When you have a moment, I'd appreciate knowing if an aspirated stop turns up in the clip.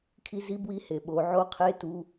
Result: yes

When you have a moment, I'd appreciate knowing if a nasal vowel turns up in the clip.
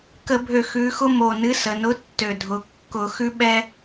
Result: no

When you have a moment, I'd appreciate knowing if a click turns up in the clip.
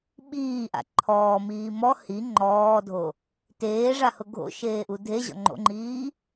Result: yes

